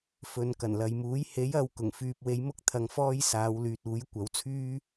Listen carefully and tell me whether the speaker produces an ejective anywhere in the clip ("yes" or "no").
no